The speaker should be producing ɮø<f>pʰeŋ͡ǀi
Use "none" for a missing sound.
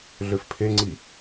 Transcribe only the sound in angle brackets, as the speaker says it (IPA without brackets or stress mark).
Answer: f